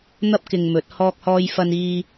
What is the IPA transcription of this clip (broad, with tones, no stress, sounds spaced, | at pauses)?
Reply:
n̪ ɐ˥ p̚ k ɪ˧ ŋ m ɵ˨˥ t̚ h ɔː˧ k̚ h ɔː˧ j f ɐ˧ n iː˧